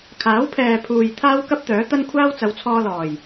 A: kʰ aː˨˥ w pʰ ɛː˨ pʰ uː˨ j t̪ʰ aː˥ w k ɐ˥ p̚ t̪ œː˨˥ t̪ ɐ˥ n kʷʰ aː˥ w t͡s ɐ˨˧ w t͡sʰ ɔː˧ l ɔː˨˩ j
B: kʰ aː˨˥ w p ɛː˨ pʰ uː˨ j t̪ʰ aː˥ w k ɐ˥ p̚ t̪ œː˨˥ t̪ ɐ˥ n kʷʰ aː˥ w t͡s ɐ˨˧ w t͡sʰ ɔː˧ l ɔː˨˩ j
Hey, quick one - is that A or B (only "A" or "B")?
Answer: A